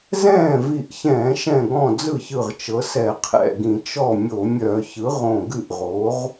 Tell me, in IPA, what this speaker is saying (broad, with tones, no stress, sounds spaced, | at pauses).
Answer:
z ɛ̃ː˥˩ v i˧˩ ʔ ç ɛ̃ː˧˩˧ ʃ ɛ̃˧˩ ɡ ɔ̃˧˩ d͡z ɯ˥˩ ç ɯ˧˩ ʁ t͡ʃ ɤ˩˥ s ɛ˧˩˧ qʰ ɛ̰˧˩ ɡ ĩ˧˩˧ t͡ʃ ɔ˥˩ mʲ o˧˩˧ mʲ œ˧˩˧ ç ɯ˩˥ ʁ õ˧˩ ɡ ɨ˥˩ ʔ ʁ o˩˥ ʁ